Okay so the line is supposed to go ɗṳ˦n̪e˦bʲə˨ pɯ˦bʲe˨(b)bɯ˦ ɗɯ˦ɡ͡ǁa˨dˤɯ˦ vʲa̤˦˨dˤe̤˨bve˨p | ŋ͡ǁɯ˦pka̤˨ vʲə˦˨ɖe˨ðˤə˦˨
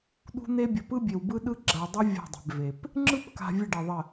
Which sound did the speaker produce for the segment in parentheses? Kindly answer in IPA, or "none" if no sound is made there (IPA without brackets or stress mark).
w